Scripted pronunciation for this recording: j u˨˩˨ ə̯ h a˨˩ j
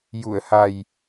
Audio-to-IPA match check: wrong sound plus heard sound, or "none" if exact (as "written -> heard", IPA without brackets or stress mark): none